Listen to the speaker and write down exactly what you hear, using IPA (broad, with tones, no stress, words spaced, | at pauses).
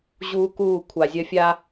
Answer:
ʑuː˦kuː˦˨ kʷʰa˨zʲɐ˦fʲa˦